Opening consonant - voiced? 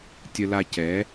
no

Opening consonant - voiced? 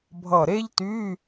yes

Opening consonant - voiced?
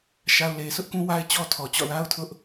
no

